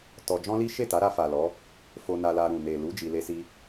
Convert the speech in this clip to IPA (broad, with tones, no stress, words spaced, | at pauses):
tɔ˧ d͡ʒɔ̃˦li˦ ʃe˦˨ta˨˦ɾa˧fa˨ lɔ˨˦ | fo˧na˧la˧ ɾũ˨ ne˨lu˨˦ d͡ʒi˧le˦si˦